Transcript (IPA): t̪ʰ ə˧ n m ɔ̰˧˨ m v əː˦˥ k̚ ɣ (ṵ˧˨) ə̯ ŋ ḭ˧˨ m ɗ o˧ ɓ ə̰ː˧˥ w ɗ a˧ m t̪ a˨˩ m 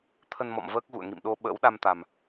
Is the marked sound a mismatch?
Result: no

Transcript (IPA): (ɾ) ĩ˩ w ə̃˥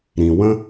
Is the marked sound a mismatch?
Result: no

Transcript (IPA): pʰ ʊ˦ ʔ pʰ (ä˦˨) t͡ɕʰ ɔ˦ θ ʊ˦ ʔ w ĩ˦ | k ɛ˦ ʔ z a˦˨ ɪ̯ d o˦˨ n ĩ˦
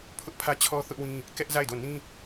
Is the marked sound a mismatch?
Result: yes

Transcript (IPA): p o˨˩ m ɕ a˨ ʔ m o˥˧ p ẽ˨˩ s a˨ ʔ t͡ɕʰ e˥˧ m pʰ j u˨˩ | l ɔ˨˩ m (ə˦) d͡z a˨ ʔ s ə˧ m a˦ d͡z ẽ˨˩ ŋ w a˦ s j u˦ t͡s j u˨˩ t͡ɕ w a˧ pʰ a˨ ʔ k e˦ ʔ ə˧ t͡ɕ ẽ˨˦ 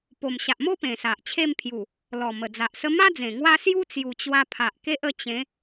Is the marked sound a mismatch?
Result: yes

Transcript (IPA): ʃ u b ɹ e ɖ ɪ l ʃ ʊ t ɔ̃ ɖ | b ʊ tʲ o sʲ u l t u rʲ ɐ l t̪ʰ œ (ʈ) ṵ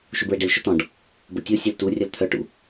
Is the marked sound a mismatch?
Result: no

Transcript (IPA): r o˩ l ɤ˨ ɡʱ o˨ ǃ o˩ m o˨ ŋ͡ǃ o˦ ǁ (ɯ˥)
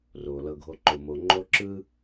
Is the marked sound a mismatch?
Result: no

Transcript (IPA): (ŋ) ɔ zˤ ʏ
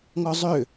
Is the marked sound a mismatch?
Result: no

